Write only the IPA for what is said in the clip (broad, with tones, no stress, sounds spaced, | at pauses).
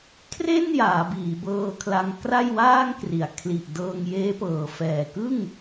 kʰ r e˥˩ n j aː˩˦ b iː˩˦ b ɤː˧ kʰ l a˧ ŋ k r a˥˩ j w aː˥˩ ŋ k r i˩˦ a̯ kʰ l i˨˩ ʔ d ɤː˧ ŋ j eː˦˥ p ɤː˨˩ f ɛː˨˩ k ɯ˥˩ ŋ